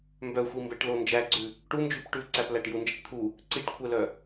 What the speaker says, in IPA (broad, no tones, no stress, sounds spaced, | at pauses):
m b œ xʷ i m b ɛ ʈ l o n d͡ʒ æ ɡ͡ǀ ʉ | ʈ u n d͡ʒ ʉ p ʈ ʉ ǀ æ p l æ ʈ j u n d͡ʒ ɛ ʈ t̪ʰ u | ǀ i ʈ kʷʰ ɛ l œ